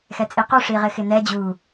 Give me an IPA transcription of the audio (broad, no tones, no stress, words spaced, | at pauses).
xɛt͡sʼiqu ʂiʁɪxɪnɛ d͡ʑu